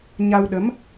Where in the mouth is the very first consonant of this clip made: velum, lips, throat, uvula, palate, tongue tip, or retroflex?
palate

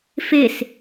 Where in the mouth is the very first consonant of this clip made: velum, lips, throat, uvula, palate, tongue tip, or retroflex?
lips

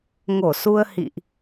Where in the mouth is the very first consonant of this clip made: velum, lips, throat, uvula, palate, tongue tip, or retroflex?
velum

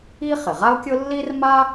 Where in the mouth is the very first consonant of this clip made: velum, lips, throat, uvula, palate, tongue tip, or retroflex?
uvula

